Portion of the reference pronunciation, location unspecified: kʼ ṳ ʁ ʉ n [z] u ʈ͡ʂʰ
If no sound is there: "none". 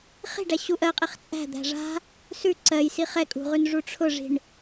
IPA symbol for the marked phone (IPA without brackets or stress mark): ʐ